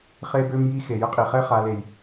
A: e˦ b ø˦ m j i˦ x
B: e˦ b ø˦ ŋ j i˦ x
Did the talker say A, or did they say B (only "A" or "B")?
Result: A